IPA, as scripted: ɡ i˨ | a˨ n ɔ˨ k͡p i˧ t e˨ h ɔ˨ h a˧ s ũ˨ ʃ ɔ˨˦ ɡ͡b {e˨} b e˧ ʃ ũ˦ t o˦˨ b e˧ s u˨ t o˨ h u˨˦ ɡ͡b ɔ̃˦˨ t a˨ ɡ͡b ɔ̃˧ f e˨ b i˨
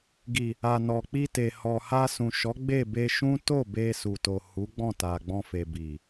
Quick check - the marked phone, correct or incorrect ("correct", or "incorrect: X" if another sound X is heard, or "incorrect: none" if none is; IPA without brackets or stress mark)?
incorrect: e˦˨